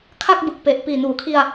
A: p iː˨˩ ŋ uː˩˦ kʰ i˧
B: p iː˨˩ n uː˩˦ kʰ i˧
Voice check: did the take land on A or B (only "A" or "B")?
B